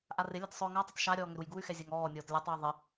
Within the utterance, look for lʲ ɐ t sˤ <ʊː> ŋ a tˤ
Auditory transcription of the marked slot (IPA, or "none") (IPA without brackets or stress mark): ʊː